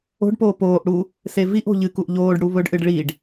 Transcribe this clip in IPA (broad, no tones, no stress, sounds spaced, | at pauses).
o̤ ɖ p oː p oː ʔ ɽ u | s e v i ʔ o̤ ʎ ɨ k u ʔ ʎ oː ɖ ɽ u β ɵ ɖ ʔ ɨ ɖ ɭ i ɖ